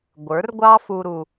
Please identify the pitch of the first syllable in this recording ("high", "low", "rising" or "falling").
rising